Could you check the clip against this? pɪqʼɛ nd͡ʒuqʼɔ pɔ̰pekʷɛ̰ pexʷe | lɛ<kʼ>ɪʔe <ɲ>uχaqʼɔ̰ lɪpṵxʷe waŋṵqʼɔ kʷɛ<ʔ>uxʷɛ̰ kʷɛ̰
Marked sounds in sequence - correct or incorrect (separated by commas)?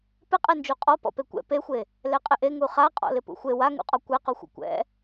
incorrect, incorrect, incorrect